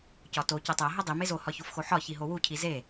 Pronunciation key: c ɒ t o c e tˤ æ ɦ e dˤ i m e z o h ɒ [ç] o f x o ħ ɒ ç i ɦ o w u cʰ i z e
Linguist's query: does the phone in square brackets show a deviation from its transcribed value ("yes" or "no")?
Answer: no